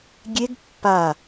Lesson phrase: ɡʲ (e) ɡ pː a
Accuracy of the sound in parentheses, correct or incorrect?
correct